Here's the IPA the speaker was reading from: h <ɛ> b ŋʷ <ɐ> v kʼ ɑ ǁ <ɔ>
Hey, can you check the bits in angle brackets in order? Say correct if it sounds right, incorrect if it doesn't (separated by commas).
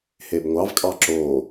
incorrect, incorrect, incorrect